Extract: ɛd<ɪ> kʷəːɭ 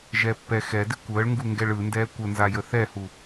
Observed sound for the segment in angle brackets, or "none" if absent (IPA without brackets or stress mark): ɪ